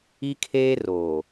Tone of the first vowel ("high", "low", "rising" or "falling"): high